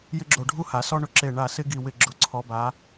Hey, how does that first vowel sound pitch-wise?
high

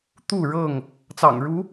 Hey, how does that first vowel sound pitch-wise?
falling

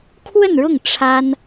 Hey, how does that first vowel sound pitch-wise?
falling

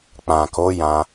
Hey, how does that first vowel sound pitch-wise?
low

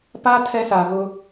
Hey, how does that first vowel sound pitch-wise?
high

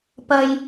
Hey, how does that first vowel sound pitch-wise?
low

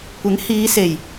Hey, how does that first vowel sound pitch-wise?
rising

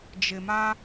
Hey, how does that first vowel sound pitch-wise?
low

